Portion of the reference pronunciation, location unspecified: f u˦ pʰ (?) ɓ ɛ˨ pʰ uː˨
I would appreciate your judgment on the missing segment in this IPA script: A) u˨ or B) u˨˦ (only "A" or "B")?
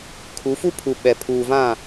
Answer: A